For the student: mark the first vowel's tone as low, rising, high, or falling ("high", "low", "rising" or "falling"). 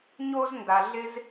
high